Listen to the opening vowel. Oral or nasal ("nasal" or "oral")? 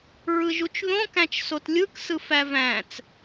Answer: oral